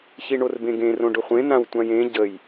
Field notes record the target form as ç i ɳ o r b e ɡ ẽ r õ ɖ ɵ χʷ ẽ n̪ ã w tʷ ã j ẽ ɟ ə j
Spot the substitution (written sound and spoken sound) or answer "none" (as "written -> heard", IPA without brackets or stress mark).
e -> ẽ